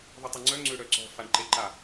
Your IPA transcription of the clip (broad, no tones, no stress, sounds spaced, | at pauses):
ðˤ u tˤ y ŋ͡ǀ œ ŋ͡ǀ ø ɽ œ ǀ ɔ̤ f a ɳ ǃ e ǃ a